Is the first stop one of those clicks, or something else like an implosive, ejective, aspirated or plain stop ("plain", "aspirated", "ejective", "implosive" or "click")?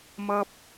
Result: plain